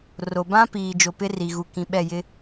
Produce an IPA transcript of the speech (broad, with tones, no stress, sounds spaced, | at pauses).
r o˨ b ã˦ p iː˨ d͡ʒ o˨ p ɪ˦ r i˨ ɣ u˨ k ĩ˨ ɓ ɛ˦˨ j ɪ˦